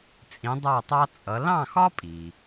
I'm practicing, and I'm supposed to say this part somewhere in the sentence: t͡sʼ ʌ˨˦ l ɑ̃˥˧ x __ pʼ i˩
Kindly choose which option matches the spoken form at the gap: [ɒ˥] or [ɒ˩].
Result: ɒ˥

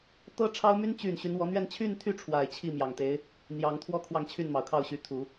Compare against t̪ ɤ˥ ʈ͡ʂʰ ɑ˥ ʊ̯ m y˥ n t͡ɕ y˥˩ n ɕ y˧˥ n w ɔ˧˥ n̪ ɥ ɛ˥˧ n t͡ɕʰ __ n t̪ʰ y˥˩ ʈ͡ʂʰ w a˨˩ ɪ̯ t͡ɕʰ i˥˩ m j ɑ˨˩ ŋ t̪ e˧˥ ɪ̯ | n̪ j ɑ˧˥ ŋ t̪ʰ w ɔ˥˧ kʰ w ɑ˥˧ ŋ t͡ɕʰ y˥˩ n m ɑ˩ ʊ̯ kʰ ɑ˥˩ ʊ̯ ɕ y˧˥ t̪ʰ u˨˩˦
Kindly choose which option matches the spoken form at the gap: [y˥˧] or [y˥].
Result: y˥˧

